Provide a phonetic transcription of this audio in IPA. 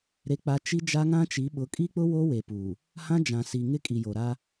ɾe˦k͡pa˦ t͡ʃi˦d͡ʒa˦ŋã˦t͡ʃi˨˦ ɓʊ˨˦kʼi˦k͡pʊ˦ wo˦we˨puː˨ | hã˦d͡ʒã˨ si˨ ŋɪ˦ kʼi˨jo˨ɾa˦

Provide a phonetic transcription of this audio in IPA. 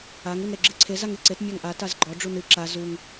aŋ unɾeɡ͡ǁɨǀʰe zaŋeǀet mʲaŋʔa tazɡ͡ǃɔ ɖ͡ʐunɨ ǁa zuŋ

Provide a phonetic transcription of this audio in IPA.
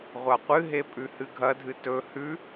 ʁʷaqʷɨɦe pʼʉhɨɡʱɐdʱɨ tɵ hʉ

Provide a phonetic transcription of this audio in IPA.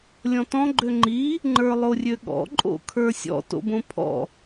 lʲɔ̃tɔ̃ ɡ͡ǃøŋ͡ǃi | ŋ͡ǃə˞lˠorʲøɠɔ̰ ǃʼo̰kʰə˞sʲɔ̰ to̰bõpʰɔ̰

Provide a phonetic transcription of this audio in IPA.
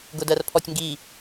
ɡʊdɜrpʰɔtʲŋɡi

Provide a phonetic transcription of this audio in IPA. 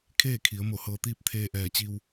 kʰeː˥˨kʰi˩˧ə̯ mo˧˩hɤː˧t̪iː˥˨p̚ t̪ʰeː˧ʔɛː˧˩t͡ɕi˧w

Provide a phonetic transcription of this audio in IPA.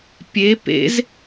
pʲe pḛz

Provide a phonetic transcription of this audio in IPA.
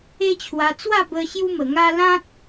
e˦t͡ɕʰwa˧ t͡swa˥˧bə˧ ɕju˦mə˨˩ŋa˦ lã˦t̚

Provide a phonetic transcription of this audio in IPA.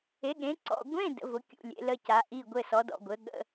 e˨˥ɠẽ˨˥ǀɔ̰˧˥˧ ɡʷẽ˧˥˧ də̰˨˥vʊ˨˥kʲṵ˧˥˧ lʲḛ˨˥lə˧˥˧ca˨˥ ʔi˧˥˧ ɡʷɘ˧˥˧sɔ˨˥dɔ̰˧˥˧ɡʷɘ˨˥ ɠə̰˧˥˧

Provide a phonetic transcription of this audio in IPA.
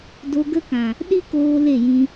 do˧ɡə˦kã˨ | ɗi˦koː˧ le˦˨jĩ˧

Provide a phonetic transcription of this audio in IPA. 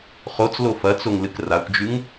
χot͡slo fɐt͡soŋlɨk rakʷd͡ʒʉŋ

